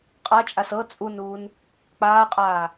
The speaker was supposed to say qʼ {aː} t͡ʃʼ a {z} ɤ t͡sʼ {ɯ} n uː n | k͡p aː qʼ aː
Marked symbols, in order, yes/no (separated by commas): no, no, no